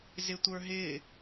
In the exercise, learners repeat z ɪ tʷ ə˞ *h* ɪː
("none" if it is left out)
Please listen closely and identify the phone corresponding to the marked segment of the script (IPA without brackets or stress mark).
ɦ